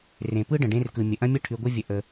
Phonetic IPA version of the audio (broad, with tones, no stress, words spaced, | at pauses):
rẽ˨ pɯ˦ɖə̃˨ɖẽ˧rkɯ˨ mʲə˨ʔɐ̃˦mʲɐ˦ ʈʰy˧ɡʷɘ˦vʲə˧ ʔə˧